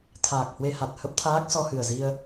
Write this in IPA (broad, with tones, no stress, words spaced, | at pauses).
t̪ʰaː˨˩k̚hwe˧ ha˨˩t̚hə˦˥p̚t̪ʰaː˦˥k̚ sɔ˧hɨ˨˩ə̯ zi˧ə̯